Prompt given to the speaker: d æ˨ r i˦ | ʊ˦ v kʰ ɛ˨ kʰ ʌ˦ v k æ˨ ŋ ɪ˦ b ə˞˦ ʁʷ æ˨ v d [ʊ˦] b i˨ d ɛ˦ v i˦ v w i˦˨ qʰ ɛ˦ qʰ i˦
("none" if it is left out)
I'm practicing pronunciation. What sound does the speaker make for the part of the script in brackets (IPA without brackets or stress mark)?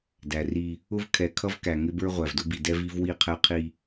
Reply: ʊ˦